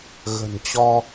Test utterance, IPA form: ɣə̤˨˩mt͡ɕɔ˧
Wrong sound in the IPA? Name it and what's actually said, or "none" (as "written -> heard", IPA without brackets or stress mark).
m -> n